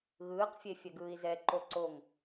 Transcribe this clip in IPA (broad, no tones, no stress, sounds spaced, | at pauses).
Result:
ɣ ɯː q fʲ e fʲ ɛ ɡ ɯː i̯ z ɛ ǃ o ǀ o ŋ